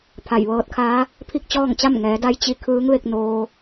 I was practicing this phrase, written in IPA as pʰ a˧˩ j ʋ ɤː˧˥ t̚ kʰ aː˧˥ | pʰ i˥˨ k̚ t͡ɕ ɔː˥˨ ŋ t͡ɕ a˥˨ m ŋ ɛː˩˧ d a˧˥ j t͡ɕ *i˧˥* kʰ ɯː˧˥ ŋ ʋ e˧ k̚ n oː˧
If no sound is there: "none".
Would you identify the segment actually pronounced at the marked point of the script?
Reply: i˧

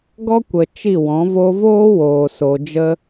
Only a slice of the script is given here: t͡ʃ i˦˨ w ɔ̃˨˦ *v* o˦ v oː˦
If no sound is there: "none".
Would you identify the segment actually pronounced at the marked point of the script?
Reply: v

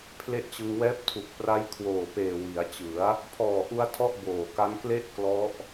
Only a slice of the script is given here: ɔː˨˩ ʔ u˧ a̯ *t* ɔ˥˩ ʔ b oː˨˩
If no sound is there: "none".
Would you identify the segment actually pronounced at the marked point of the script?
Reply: tʰ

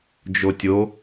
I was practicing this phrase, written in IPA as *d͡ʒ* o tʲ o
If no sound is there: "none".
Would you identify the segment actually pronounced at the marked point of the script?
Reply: d͡ʒ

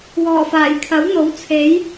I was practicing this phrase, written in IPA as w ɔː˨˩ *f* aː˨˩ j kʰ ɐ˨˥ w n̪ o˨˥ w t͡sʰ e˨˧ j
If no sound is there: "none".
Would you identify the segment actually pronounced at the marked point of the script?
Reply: f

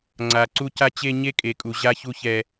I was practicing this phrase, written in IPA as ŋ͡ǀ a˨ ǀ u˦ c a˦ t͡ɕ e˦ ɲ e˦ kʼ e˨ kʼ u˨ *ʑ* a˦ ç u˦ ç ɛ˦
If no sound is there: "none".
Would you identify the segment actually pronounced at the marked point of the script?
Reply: ʑ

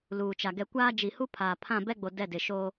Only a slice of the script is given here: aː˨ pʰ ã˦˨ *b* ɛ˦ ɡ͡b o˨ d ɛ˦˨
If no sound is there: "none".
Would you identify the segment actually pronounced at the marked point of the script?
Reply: b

